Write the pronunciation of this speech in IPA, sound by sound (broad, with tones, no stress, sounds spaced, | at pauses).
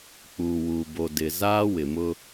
k͡p uː˨ w uː˨ b o˨ d ɪ˨ z aː˦ w ɪ˨ m ʊ˦